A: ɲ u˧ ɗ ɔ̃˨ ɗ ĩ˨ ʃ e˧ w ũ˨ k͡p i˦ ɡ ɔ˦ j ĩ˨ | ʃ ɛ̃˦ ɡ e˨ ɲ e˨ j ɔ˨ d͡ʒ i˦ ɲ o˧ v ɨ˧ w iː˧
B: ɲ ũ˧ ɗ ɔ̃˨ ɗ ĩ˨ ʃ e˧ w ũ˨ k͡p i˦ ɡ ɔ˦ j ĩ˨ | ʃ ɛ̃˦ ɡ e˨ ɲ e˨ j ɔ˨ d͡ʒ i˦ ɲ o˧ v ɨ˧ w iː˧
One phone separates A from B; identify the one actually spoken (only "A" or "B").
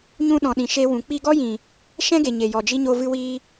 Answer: B